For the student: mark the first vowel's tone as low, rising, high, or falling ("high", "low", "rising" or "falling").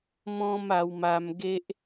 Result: high